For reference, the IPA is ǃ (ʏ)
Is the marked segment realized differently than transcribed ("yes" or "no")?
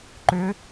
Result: no